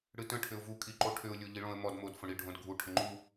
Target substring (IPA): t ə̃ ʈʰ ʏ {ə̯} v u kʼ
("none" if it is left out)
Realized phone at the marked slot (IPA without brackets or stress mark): ʊ̯